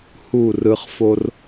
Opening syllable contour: falling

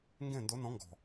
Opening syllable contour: falling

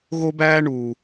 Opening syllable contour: high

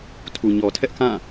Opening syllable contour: low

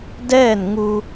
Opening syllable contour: falling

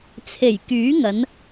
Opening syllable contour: low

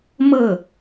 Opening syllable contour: falling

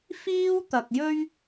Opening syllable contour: high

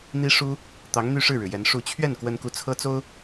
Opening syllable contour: high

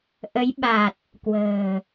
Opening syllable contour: rising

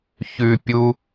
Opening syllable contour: low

